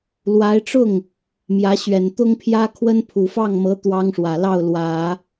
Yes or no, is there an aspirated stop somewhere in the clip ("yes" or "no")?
yes